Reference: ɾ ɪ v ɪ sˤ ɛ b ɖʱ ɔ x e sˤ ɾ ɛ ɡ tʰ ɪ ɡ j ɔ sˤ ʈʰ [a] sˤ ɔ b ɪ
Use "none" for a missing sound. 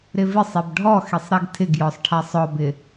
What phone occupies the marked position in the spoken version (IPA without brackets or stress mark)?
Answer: a